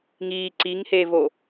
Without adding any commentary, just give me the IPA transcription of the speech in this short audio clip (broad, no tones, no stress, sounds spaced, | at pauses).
ŋ iː ǀ i ŋ h eː v o